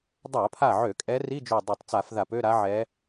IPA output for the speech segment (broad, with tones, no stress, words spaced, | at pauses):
dˤa˧˩˧pʰa˧˩ʕø˧˩˧ kʼɛ˧˥ri˧˥˧d͡ʒø˧˩ dˤø˧˩˧tˤt͡sa˧˩˧fða˧˩˧p ø˧˥˧ɾa˧˥ʕɛ˧˥